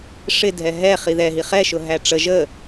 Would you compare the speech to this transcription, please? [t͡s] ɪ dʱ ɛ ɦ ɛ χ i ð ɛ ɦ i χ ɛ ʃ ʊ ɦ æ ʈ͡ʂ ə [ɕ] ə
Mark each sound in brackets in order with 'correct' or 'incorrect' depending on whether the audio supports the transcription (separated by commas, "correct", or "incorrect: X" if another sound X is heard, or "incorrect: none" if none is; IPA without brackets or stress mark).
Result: incorrect: ʂ, incorrect: ʒ